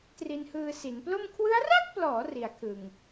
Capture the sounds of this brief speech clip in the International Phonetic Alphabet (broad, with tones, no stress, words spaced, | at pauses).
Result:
tri˧nhɯː˧ si˩˦nplo˥˩m kʰwɯ˦˥a̯ra˥˩k̚plɔː˩˦ ri˨˩a̯kʰɯ˨˩ŋ